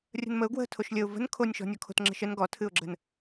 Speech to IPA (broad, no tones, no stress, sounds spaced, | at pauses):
rʲ ə̤ n m ə ʊ̯ ɡ w ə̤ tʰ o ʃ lʲ ə ʊ̯ v ə̤ n kʰ o nʲ ʃ ɔ̤ nʲ ɔ kʰ o̤ t ŋ͡ǁ ə̤ ʃ ə n ɡ ɔ tʰ ɨ ʊ̯ ɡ͡ǁ ə̤ n